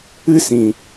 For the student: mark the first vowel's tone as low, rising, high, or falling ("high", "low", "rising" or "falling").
high